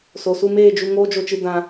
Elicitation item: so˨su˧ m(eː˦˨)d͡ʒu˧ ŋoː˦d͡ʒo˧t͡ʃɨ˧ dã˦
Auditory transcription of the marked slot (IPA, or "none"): eː˦˨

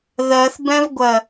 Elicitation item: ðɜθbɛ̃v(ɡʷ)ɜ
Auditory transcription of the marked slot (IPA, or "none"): ɡʷ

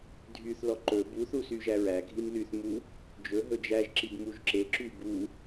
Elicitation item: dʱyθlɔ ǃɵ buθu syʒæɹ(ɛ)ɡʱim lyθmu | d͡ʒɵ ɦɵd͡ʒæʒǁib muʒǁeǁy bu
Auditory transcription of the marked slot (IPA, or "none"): æ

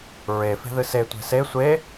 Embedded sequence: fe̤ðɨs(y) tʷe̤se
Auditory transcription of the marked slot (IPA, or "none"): e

